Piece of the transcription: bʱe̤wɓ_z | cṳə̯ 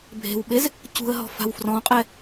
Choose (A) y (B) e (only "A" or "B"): B